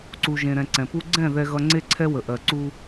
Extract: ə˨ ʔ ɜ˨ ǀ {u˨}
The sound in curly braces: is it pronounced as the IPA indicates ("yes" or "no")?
no